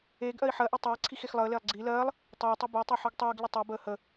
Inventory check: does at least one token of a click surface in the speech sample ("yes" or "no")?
yes